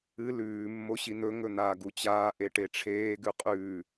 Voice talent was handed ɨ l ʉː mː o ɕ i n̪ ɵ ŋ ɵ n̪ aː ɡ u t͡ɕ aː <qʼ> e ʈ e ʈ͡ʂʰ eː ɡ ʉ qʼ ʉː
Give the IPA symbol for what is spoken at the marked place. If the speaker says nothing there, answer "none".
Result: ʔ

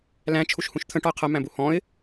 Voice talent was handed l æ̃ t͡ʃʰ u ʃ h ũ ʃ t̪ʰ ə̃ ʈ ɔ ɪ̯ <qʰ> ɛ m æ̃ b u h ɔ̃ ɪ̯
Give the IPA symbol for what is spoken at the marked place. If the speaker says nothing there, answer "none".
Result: qʰ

